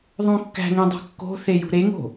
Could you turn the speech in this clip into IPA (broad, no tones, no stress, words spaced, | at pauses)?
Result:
ðˤõkːæ̤ŋĩ dˤo̤kːo̤θe jṳɾeŋo̤